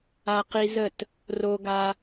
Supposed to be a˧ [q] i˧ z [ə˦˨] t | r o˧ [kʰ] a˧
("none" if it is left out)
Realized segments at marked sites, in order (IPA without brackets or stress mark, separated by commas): q, ə˦˨, ɡ